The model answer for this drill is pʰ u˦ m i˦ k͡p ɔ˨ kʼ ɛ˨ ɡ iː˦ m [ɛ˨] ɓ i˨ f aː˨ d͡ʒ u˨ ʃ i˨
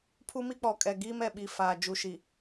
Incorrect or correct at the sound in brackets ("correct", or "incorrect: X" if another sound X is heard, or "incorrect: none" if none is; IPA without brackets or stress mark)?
correct